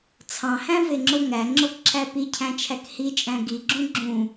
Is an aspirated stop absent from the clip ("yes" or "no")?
no